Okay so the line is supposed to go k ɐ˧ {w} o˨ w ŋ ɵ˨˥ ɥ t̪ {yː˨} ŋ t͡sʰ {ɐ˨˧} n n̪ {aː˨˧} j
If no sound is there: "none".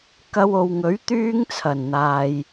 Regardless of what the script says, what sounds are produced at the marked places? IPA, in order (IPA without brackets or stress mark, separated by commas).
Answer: w, yː˥, ɐ˨˩, aː˨